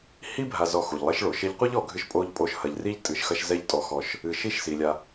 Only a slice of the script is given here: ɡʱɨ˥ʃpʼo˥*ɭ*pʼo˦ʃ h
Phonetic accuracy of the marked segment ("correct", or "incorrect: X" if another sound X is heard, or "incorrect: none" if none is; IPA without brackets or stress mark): incorrect: ʎ